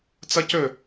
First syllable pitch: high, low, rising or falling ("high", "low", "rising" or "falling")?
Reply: high